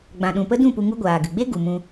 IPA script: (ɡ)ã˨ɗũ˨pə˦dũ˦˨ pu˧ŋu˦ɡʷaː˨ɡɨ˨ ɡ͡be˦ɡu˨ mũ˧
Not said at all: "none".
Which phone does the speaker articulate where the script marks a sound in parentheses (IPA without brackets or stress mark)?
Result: ɡ͡b